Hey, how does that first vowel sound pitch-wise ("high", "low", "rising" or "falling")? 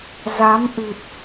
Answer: rising